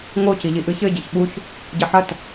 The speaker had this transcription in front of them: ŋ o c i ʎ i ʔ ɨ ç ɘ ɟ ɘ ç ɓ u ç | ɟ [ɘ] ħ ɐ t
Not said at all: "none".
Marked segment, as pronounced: ɘ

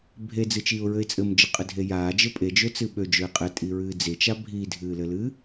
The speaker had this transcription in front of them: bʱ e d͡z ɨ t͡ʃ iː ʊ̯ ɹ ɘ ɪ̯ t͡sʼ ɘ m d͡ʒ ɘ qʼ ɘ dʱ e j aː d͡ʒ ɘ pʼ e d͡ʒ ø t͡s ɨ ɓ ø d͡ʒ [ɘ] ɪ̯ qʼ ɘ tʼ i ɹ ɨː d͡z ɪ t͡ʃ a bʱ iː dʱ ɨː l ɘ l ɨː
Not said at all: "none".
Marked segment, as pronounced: ø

